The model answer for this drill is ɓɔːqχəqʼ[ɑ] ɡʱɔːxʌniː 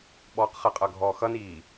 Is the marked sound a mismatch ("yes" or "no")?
yes